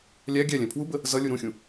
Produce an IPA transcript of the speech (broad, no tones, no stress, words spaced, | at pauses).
lʲæ ɡʲælʲɛ̃ pʰwubə | zʌlʲu ɾũxʲũ